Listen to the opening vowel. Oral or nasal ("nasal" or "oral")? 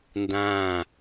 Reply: nasal